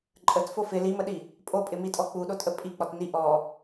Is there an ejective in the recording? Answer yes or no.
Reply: yes